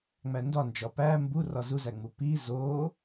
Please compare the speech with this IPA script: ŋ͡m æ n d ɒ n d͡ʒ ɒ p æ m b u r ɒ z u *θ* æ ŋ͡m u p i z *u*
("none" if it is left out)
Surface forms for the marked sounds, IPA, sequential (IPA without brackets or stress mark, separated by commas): z, o